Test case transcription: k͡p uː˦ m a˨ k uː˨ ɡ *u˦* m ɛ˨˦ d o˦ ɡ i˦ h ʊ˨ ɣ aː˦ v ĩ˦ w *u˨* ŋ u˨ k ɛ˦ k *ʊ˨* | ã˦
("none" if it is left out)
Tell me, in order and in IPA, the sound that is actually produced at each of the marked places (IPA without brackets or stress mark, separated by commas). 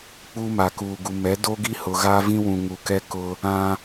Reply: u˨, ũ˨, ʊ˦